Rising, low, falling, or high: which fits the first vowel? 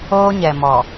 high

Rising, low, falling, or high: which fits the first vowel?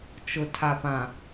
low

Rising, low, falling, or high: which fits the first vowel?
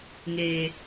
high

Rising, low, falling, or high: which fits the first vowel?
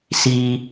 low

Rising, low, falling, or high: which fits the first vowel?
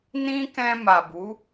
high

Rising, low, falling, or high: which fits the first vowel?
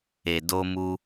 low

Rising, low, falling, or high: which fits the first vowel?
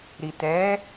low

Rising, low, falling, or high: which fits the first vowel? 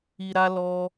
low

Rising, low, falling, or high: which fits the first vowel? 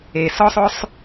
low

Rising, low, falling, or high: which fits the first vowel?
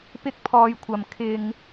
high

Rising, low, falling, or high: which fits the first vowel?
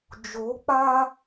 rising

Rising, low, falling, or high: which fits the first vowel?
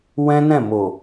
high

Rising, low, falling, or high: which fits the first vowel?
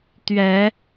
rising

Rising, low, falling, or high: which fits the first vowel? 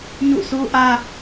falling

